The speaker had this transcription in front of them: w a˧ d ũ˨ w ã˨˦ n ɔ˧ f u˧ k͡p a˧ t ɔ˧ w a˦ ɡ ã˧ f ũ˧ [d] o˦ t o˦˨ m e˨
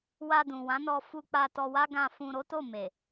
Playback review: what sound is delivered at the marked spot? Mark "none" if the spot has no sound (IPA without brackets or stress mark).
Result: ɾ